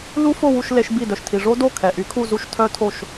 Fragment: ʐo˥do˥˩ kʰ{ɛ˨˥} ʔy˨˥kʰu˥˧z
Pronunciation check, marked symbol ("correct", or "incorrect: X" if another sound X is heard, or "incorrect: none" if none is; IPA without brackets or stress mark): incorrect: ɛ˨